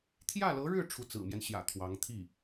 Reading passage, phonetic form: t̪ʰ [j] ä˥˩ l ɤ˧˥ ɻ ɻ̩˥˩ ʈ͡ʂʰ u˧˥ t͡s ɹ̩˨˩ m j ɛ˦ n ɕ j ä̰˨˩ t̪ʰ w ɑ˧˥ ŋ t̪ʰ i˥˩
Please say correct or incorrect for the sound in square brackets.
correct